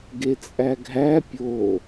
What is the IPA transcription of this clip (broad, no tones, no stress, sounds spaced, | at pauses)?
ɡ e t͡sʼ æ ɡʱ æ pʲ o